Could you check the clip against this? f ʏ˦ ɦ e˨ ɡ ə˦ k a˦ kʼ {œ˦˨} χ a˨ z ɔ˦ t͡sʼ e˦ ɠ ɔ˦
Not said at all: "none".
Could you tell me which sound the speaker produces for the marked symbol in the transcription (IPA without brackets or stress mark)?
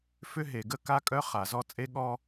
œ˦